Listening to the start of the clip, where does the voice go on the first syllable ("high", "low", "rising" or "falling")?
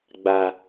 low